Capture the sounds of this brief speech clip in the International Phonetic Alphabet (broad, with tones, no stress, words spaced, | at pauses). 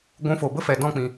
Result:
ɡʷũ˨˦fo˨bə˦fɛ˨ dɔ̃˦˨k͡pĩ˨